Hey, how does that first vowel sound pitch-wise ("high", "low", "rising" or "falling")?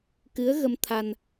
rising